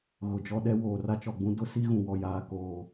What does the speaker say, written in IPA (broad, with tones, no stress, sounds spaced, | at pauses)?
ɣ ʊ˨ d͡ʒ ɔ˦ ɗ ɛ˦ w oː˨ r a˦ t͡ʃ ɔ˨ ɡ͡b ũ˦ d ʊ˦ s i˦ ɣ ũ˨ w ɔ˨ j aː˨ k oː˨